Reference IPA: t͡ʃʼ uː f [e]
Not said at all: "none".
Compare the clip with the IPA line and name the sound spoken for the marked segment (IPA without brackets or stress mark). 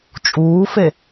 e